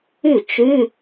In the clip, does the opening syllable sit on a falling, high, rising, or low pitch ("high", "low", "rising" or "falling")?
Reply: falling